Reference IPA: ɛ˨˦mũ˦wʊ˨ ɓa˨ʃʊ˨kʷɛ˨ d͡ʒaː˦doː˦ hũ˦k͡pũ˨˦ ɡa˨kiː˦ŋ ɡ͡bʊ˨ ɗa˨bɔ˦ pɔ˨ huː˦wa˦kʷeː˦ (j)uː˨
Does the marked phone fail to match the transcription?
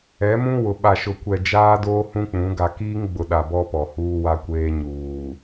yes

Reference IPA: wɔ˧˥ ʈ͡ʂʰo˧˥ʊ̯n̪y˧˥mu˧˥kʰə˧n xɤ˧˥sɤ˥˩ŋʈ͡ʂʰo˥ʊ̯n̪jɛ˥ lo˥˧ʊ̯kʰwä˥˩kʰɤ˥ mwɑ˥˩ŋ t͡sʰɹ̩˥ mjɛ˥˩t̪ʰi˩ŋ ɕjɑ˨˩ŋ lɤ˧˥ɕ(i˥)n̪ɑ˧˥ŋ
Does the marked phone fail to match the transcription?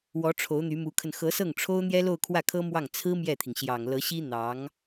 no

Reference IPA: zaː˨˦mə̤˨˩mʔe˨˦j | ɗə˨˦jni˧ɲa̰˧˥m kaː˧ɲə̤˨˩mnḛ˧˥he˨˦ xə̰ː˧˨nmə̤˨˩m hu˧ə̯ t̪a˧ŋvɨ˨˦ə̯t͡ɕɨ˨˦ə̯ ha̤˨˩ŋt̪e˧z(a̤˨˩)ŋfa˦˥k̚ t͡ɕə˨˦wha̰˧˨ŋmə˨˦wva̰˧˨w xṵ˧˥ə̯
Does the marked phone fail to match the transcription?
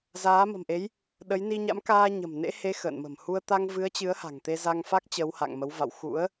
yes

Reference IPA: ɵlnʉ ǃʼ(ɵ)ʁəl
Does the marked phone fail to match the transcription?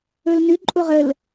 yes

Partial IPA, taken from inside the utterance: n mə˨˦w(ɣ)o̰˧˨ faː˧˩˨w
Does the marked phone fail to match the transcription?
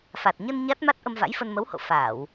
yes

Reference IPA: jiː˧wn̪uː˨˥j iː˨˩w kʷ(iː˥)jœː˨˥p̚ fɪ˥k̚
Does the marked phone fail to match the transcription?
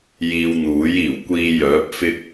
yes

